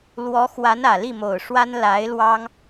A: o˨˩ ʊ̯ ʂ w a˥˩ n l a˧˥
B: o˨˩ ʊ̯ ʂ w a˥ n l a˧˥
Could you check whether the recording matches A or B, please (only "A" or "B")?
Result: B